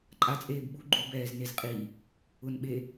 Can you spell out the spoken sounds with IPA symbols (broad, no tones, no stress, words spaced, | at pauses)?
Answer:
ǃʼat͡sʼeːb ɓu ɡ͡ǃubɛːznez qʼi | ʊnɓe